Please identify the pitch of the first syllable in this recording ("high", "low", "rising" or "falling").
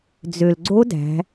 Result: low